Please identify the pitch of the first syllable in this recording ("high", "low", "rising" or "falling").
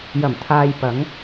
low